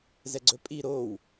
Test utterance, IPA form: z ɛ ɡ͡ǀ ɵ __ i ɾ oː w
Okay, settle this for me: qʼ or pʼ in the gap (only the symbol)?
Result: pʼ